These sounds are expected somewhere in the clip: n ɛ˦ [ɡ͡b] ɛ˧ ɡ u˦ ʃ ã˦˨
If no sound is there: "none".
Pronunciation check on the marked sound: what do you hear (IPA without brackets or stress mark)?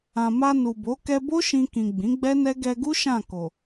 ɡ